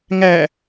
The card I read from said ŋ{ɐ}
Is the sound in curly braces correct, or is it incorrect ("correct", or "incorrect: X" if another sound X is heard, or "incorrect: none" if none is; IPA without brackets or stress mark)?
incorrect: æ